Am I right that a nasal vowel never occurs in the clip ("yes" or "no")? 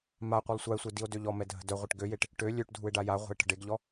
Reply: yes